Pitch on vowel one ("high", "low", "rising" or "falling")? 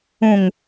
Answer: low